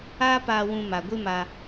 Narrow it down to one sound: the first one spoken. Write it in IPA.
aː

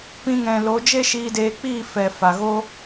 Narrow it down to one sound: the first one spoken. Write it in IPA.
p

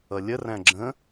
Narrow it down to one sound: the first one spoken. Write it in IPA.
ʌ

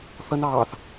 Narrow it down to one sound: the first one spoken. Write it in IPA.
θ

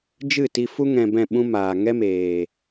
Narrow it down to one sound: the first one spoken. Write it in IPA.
d͡ʒ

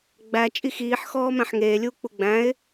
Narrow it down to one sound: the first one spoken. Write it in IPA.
ɡ͡b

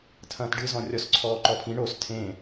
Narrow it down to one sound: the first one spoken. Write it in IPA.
tʰ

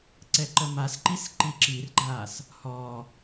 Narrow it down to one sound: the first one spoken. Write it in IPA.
ǀ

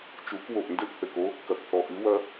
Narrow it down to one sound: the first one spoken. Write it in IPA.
t͡ʃ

